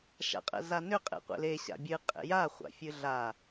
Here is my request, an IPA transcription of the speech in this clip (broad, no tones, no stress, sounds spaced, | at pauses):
ʃ a̰ qʼ ɛ̰ z a n ʏ qʼ ḛ qʷ ḛ l e ɕ a̰ bʲ ɨ qʼ ḛ j a χʷ a̰ fʲ ɨ ɮ a